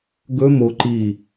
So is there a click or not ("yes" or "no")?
yes